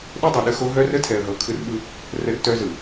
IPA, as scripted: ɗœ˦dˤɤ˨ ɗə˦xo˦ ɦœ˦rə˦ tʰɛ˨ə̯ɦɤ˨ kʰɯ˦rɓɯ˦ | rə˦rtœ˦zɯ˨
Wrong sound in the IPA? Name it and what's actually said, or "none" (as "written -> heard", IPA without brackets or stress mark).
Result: none